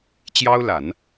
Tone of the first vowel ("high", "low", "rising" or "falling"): high